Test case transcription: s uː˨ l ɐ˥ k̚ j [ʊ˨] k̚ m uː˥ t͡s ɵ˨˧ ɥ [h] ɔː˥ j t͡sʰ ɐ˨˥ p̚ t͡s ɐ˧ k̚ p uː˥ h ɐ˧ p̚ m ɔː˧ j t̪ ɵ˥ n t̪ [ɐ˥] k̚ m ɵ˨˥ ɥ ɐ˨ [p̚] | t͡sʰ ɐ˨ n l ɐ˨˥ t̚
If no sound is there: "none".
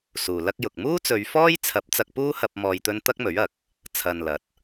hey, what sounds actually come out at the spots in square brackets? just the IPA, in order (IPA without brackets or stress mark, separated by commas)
ʊ˨, f, ɐ˥, k̚